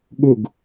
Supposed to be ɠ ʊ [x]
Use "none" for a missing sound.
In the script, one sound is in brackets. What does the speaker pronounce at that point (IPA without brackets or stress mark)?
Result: ɡ